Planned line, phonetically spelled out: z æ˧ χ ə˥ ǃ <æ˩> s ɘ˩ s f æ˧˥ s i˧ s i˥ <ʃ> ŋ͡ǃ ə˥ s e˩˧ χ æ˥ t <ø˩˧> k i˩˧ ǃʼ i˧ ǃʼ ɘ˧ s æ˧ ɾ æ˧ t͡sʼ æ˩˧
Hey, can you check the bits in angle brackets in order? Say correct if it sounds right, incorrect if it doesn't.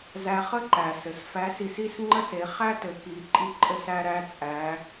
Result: correct, incorrect: s, incorrect: ɘ˩˧

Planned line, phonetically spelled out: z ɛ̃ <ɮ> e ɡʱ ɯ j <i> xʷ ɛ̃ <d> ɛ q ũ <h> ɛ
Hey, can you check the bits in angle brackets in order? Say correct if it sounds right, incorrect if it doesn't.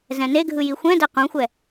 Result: incorrect: n, correct, correct, incorrect: xʷ

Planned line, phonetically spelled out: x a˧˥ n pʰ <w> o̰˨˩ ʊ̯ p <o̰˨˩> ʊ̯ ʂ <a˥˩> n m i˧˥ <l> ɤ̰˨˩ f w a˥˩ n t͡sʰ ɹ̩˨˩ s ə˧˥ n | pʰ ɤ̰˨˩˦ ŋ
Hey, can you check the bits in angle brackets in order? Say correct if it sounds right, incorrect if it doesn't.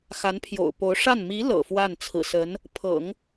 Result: incorrect: j, incorrect: o˧˥, correct, correct

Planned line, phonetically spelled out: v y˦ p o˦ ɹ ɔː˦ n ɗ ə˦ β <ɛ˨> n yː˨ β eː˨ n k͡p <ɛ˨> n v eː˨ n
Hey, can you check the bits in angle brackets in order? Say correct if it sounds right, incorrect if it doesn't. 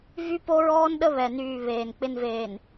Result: correct, incorrect: ɪ˨

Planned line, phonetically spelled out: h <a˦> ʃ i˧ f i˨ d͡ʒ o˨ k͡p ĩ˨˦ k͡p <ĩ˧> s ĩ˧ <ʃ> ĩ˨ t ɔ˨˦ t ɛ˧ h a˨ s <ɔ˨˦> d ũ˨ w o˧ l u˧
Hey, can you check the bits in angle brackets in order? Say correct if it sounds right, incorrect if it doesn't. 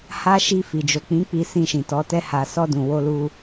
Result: correct, incorrect: i˧, correct, incorrect: ɔ˧

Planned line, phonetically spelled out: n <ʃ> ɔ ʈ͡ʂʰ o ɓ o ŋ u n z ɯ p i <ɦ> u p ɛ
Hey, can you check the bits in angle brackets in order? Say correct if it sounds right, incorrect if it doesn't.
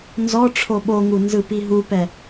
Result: incorrect: z, correct

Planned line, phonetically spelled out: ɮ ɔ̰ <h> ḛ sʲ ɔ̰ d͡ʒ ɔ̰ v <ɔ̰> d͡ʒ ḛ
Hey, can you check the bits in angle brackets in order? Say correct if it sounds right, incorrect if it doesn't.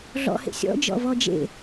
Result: correct, incorrect: ɔ

